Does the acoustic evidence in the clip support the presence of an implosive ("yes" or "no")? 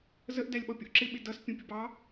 yes